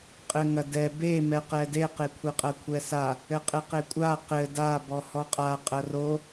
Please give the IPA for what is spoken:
qʼɘŋɐdɛ be mɛqɛdeqe kʷʰeqʼɐkʷʰɛsa | ɘqʼɘqekʷʼa qɘ dabɔ hɔqʼa qʼɐro

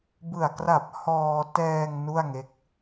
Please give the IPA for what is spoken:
bɯ˨˩a̯ kra˨˩p̚ hɔː˧tɛː˧ŋ nu˥˩a̯ŋe˦˥k̚

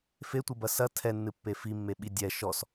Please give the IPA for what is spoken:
fetʷɨbɐ sɐ tʰɛnːɨpːe fimːeɓi dʲɛ ʃɔs

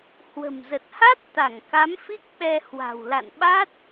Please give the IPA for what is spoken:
hwə̤˨˩mzə˨˩t̚ha˦˥t̚ t̪a˧˩ŋka˨˦mfi˦˥k̚ ɓɛ˧ hwa̤˨˩wla̰˧˨nɓa˦˥t̚

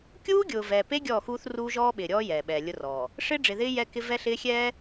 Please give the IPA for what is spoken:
kʲuː˦ɡʲʊː˨vɛː˨pe˦ ɡʲɔː˦˨xuː˦θ ruː˦ʒɔː˦ɓɪː˨ɾʲɔː˦ jɛː˨ɓɛː˨lʲʊ˦rɔː˨ | ʂɪː˦ɖ͡ʐɪ˨ðɪː˦ jɛ˦kɪ˦ vɛ˦ɬɪː˦ xʲɛː˦

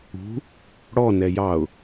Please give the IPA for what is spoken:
ṳ | ɽɔ nɛjɑʊ̯

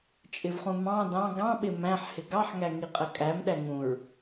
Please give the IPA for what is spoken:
t͡ʃʼɪvχũmɑ̃ dɑ̃ ɡɑ̃ ɓɪ mæ̃ħ hɪɡɑħ ŋæŋiqʼɜkʼæm ɗæŋũɹ

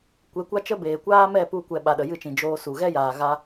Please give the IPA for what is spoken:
kʷe˨˦kʷa˦t͡ʃə˦ beː˨kʷaː˦mɛ˦˨ pu˧kʷɛ˨ ɓa˨ɗə˨jɨ˦˨t͡ʃĩ˨ d͡ʒoː˧su˨ ɣɛ˦jaː˨ ɣa˧

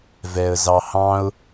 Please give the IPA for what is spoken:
vɛə̯zɑhɑ̃ʊ̯

